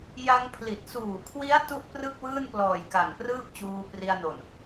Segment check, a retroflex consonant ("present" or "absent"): absent